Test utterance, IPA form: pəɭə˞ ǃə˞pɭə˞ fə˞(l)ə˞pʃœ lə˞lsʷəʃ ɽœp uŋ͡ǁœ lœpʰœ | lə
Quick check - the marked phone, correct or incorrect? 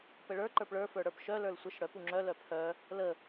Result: incorrect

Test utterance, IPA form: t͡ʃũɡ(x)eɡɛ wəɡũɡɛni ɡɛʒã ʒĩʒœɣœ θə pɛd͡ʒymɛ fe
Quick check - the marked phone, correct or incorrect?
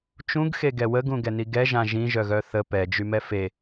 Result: correct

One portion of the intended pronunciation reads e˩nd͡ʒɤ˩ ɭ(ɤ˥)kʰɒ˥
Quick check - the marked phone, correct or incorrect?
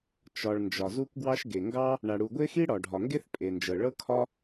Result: correct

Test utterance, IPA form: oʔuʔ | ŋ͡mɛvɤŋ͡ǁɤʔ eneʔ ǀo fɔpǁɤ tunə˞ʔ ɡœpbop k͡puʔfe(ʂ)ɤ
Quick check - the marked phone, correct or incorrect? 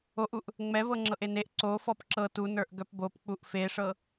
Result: correct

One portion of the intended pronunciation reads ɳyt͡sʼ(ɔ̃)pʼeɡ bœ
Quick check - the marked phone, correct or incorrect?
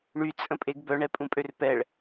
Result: incorrect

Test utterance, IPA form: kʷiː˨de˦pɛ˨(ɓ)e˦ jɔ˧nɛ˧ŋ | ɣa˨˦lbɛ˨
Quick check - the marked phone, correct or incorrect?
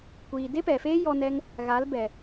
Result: incorrect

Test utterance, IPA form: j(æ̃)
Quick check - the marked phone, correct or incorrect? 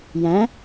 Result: correct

